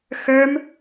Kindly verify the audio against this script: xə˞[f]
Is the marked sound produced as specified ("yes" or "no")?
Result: no